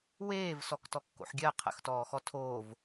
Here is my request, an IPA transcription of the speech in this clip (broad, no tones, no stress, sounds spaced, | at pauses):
w eː v s ɔ k t ɔ kː o̰ ħ ɡʲ ɜ qʰ ə̰ x t ɔː x ɔ tʰ oː v